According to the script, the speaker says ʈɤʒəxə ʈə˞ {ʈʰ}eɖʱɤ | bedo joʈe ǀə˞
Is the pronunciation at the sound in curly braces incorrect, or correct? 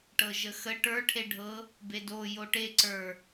correct